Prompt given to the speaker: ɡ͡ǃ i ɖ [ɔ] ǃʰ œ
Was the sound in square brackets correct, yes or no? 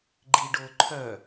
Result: no